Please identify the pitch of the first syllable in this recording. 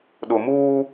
low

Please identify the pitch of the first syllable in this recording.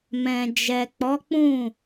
low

